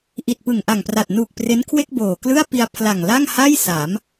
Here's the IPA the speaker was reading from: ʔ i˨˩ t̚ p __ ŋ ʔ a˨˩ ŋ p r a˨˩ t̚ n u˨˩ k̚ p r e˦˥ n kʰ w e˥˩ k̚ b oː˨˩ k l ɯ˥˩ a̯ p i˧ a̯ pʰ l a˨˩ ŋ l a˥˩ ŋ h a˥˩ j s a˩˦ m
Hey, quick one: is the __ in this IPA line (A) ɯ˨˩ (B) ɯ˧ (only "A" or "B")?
A